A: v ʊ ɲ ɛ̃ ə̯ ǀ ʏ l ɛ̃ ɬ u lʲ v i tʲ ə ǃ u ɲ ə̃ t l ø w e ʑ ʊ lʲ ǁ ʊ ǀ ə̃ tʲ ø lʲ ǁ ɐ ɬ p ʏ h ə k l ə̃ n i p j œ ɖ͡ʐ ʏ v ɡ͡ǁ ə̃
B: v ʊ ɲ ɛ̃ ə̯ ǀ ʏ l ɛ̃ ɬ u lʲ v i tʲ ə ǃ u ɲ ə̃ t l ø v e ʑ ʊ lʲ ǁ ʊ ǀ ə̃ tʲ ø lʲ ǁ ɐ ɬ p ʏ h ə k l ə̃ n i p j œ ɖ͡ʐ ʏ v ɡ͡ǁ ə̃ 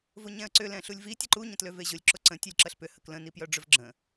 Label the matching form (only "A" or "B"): B